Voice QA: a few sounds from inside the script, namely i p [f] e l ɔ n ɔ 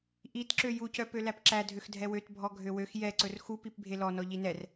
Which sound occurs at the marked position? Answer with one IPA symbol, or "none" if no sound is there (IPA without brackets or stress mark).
bʱ